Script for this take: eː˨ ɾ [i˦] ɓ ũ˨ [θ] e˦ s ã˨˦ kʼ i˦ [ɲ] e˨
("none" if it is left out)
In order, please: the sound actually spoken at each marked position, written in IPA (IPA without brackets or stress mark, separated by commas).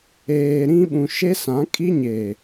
ĩ˦, ʃ, ɲ